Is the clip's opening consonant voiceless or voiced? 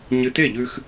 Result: voiced